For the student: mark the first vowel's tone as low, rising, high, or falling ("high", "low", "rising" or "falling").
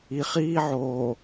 low